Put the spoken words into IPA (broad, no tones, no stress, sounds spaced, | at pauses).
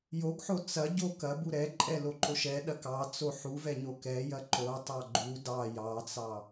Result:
j o ɡ ħ o t͡s ɐ ɟ o k ɐ b u ɾ ɛ ǃʼ ɛ l o ǃ o ʃ ɛ ɗ ɐ k ɑ t͡s o ħ u v ɛ ɲ o k ɛ j ɐ ǃ o tˤ ɑ ɡ͡ǃ u d ɑ j ɑ t͡s ɑ